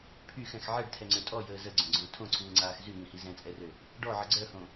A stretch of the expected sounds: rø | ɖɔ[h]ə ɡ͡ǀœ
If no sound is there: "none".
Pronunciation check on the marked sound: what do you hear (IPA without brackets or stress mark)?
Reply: ʕ